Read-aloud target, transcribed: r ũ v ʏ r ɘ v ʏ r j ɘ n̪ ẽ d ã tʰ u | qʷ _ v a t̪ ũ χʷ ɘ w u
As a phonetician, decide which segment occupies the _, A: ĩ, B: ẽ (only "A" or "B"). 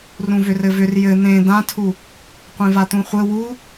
B